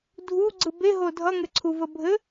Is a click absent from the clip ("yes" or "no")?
no